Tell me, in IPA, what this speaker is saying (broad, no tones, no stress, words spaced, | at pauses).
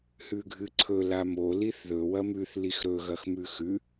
hʉɡʱɨǀʰɵ lamo liθðɵ wɐmʉθ lixɾɵ ɣɐxmʉxʉ